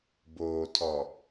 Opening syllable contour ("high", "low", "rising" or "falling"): low